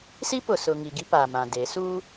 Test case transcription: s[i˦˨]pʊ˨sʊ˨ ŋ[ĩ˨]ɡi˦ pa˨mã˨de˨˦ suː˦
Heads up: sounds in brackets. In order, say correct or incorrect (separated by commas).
incorrect, incorrect